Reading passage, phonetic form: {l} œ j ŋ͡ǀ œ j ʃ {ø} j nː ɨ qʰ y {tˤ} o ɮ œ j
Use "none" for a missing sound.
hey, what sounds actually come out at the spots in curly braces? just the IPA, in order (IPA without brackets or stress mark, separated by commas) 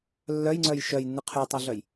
lː, œ, tˤ